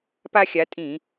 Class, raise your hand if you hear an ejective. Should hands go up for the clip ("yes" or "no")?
yes